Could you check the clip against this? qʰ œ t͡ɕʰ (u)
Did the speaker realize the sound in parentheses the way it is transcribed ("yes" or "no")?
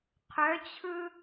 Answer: no